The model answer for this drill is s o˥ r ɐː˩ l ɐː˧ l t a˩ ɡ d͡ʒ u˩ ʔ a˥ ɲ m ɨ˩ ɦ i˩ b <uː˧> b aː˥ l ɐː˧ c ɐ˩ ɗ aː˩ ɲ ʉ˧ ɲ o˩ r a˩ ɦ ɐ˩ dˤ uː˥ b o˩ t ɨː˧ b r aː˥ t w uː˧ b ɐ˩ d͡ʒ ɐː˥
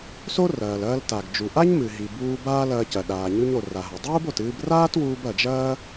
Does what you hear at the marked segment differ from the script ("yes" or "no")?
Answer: no